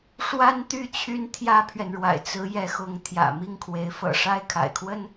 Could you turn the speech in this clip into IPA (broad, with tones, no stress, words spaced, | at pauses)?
ʂwa˥nt̪y˥˩ t͡ɕʰy˥nt̪ʰjä˥pʰɥɛ˨nɻwa̰˨˩ɪ̯ t͡sɹ̩˧˥jɛ˧˥xʊ˧˥ŋ t̪ʰjä̰˨˩mi˥˩ŋkʰwe˧˥ɪ̯ fɤ̰˨˩ʂa˥ɪ̯ kʰa̰˨˩ɪ̯kʰwə˥n